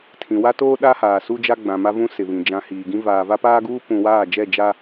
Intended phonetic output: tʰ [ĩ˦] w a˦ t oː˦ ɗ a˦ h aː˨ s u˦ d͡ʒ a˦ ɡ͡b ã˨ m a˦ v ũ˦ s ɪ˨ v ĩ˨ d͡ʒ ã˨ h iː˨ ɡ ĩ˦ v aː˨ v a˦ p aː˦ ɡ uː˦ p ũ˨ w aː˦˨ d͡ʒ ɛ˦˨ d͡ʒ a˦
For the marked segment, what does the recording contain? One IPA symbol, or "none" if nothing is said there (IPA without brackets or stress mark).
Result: ĩ˨